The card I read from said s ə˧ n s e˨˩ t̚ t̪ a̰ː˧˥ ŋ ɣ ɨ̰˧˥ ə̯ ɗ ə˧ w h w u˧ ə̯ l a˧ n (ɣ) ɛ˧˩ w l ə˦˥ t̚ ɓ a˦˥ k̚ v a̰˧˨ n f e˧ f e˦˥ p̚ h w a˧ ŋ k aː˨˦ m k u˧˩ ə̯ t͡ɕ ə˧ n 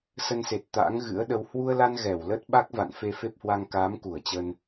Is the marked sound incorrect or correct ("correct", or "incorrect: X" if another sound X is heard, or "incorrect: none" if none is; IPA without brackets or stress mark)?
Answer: correct